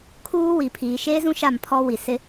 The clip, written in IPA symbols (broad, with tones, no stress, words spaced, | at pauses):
kʰuː˦ wi˨pʰiː˨ ʃeː˦zũ˦ ʃa˦˨mpʰɔ˦ wi˨sɪ˦